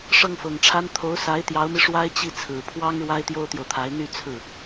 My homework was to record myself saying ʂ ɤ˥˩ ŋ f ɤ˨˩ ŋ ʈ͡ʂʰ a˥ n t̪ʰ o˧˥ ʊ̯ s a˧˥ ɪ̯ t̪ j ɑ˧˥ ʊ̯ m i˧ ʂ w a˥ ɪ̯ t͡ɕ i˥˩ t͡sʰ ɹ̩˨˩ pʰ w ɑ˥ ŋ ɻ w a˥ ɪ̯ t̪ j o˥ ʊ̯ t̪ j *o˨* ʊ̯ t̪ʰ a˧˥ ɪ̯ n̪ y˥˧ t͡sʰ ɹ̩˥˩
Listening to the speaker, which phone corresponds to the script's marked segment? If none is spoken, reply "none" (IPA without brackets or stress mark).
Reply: o˨